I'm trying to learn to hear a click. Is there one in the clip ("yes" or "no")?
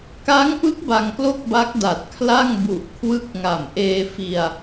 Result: no